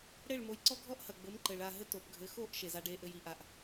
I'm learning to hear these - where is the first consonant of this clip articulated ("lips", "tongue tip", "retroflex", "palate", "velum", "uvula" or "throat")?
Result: retroflex